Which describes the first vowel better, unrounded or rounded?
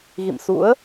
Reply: unrounded